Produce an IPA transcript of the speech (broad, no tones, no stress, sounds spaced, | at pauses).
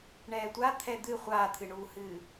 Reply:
ɳ ɛː tʷ a t̪ʰ ɛ d̪ ɨ χʷ aː t̪ʰ ɨ ɳ uː h ɨː